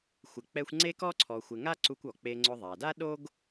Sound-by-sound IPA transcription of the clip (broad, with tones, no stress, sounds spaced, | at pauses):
xʷ ɪ˨ k͡p ɛ˦ xʷ ŋ͡ǀ e˥ k ɔ˥ ǀʰ ɔ˨ xʷ ɪ˨ ŋ a˥ ǀ u˦ kʷ ɔ˩ k͡p e˦ ŋ͡ǀ ʊ˦ ðˤ a˩ d a˥ ɗ o˥ ɡ